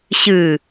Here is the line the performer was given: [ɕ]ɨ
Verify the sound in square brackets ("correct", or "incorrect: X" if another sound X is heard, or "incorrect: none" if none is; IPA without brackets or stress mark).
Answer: correct